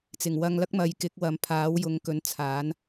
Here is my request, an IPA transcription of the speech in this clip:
t͡s ɪ˨˩ ŋ w ɐ˧ ŋ l ɐ˥ k̚ m ɐ˨ j k ɪ˨˥ k̚ w ɐ˨ m pʰ aː˨˥ w j ʊ˨˧ ŋ k ɵ˨˧ n t͡sʰ aː˨˥ n

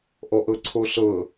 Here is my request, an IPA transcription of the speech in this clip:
ʔ ɔ ʔ ɤ ǀʰ o ɬ ɤ

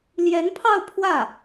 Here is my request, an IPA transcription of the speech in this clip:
l j ɛ˧˥ n pʰ ɑ˥˧ ʊ̯ pʰ w ä˥˩

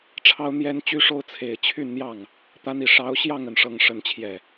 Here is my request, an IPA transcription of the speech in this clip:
ʈ͡ʂʰ ɑ˥ ʊ̯ n̪ j ɛ˥ n t͡ɕ y˥ ʂ o˥ ʊ̯ t͡sʰ e˨˩ ɪ̯ t͡ɕʰ y˥˧ n n̪ j ɑ˥˩ ŋ | t̪ a˥ n i˥˩ ʂ ɑ˧˥ ʊ̯ ɕ j ɑ˥˧ ŋ ə˥˩ n ʂ ɤ˥ ŋ ʂ ə˥ n t͡ɕʰ j ɛ˥˩

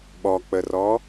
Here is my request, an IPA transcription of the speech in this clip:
ɓ ɔ k͡p ə r ɔ

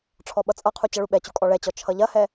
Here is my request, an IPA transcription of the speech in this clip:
ʈ͡ʂʰ ɔ ɓ ʌ t͡sʼ ʌ qʰ u t͡ɕ ʌ ɭ u ɓ ɛ t͡ɕ u kʼ ɔ ɭ ɛ t͡ɕ ɔ t͡ʃʰ ʌ ʎ ɐ h ɛ

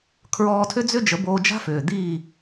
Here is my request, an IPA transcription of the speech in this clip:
kʰ ɹ ɔː˧ tʰ ʏ˥ d͡z ʏ˥ d͡ʒ ə˩˥ b oː˧ d͡ʒ a̤˥ f ʏː˩ d̪ iː˥˩

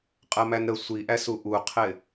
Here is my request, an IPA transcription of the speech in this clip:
qʼ ɜ m æ n ɾ ə sʷ i ʔ æ s u ʔ u qʰ ɪ

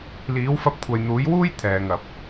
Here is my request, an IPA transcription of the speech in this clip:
l iː˨˥ w f ɐ˧ p̚ kʷʰ ɐ˨ j n̪ uː˨˥ j w uː˥ j t̪ʰ ɛː˨ ŋ ɐ˨ p̚

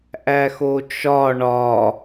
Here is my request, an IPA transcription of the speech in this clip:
ʔ æ x o t͡ʃ ɒ ɳ ɒ

